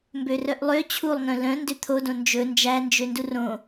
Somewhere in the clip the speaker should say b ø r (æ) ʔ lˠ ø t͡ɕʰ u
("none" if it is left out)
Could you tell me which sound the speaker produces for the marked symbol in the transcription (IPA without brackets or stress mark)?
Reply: œ